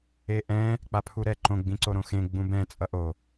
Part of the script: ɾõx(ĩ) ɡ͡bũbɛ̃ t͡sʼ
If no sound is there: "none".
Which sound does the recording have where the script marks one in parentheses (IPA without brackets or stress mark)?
ẽ